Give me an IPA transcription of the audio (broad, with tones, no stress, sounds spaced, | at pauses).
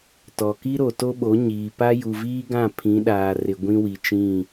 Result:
t ɔ˨ k i˦ ɾ o˨ t o˦ ɓ o˨˦ ɲ iː˨ p a˦ j u˨ v iː˦ ɡ ã˦˨ pʰ ĩ˨˦ ɗ aː˨ r ɪ˨ ɡʷ ĩ˦ w i˨ t͡ʃ ĩ˦˨